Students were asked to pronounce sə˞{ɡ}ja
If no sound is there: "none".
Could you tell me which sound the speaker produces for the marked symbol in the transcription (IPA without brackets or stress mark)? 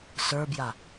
b